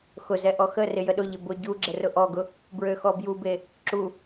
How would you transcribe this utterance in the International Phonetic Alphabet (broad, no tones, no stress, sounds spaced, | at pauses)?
x ʊ z ɛ ʔ ɔ x ə r ɪ j ə ɗ ʊ ʎ ɪ b ʊ ɟ u ɡ͡ǁ ə r ʊ ʔ ɔ ɡ ʊ | b ɹ ø x ɔ b j u b e | ǁ u